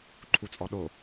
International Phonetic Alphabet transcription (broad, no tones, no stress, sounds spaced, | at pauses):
ǃʰ u t͡sʼ ɔ ɗ o